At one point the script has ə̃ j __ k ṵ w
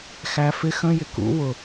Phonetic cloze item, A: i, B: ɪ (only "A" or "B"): B